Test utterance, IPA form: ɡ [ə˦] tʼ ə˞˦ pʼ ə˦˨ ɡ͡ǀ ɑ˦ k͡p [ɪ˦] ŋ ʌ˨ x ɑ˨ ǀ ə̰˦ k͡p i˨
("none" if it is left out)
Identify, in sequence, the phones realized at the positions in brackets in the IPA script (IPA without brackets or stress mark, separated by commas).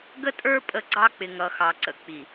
ə˦, ɪ˨